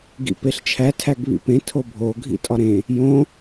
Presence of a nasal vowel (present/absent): present